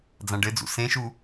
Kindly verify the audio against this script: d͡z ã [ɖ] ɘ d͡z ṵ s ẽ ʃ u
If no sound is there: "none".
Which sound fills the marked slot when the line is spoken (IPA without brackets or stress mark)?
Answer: ɖ